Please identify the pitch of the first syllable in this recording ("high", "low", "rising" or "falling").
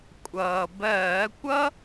low